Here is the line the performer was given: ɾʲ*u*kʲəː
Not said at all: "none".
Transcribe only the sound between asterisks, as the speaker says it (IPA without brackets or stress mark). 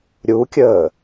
u